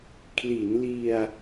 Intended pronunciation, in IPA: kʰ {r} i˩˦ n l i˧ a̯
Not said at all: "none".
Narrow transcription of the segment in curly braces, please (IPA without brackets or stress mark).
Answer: l